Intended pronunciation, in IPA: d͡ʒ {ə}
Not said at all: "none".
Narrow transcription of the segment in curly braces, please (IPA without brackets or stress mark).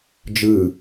ɯ